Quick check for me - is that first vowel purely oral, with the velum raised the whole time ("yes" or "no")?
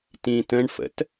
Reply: no